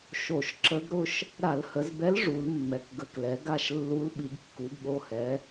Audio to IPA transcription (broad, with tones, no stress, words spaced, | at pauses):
ʃo˧˩˧ʃ ǁə˧˥ɡɾʊ˥˧ʃ | ɾa˧˩˧lhə˩˧zbɛ˧˥l ʐu˩˧lmːɛ˩˧kɡə˩˧˩klɛ˩˧ ɡa˥˧ʃlːu˧˥l ɓi˩˧ɡkːu˩˧ɡɠo˩˧˩ hɛ˩˧